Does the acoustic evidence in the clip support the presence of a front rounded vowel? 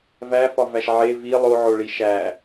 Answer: no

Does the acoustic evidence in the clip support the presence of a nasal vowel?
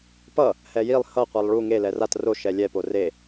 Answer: no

